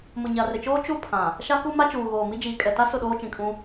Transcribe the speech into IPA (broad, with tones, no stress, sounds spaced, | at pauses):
m ʊ˨ ɲ a˨ r ɪ˨ t͡ʃ oː˦ t͡ʃ u˦ pʰ ã˨ | ʃ a˦ k u˦ m a˦ t͡ʃ uː˨ ɣ oː˨ m i˦ d͡ʒ iː˨ kʼ ɛ˨ t a˦ s ʊ˦˨ ɗ oː˦ t͡ʃ ĩ˨ kʼ ũ˦